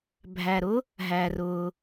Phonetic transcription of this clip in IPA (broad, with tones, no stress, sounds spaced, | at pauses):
bʱ æ˩ ɾ ʊ˥ | ɦ æ˩ r ʊ˩